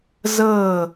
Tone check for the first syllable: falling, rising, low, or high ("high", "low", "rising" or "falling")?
falling